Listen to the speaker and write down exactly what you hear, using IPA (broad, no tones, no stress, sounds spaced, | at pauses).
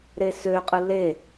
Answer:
ɾ e s ø qʼ ɯ l e